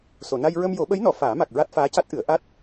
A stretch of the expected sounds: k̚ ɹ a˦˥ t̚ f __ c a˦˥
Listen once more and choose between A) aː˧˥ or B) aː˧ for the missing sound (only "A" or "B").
A